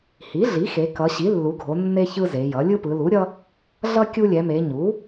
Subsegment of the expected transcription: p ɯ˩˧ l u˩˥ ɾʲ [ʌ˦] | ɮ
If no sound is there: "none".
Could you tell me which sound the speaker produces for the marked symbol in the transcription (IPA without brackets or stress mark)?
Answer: ʌ˦